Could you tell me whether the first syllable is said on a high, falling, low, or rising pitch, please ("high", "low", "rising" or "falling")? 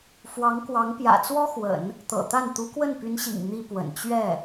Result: rising